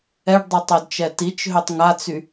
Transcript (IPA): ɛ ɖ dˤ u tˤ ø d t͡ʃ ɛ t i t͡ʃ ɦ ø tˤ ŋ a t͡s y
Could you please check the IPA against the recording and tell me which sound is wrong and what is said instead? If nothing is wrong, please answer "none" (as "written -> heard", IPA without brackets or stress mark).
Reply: none